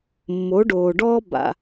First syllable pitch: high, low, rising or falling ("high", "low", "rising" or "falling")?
rising